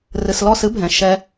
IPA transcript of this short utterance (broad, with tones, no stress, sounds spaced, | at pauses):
r ɨ˨ s l ɔ˦˨ s ɨ˦ bʱ ɛ̃˨ ʃ ɛ˧